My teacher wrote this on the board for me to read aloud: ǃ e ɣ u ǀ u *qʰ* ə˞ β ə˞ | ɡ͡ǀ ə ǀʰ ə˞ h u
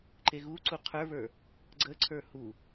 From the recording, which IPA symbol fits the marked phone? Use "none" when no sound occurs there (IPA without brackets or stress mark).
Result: qʰ